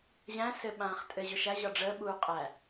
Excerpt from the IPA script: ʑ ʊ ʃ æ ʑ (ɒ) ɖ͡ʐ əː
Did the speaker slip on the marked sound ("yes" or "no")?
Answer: no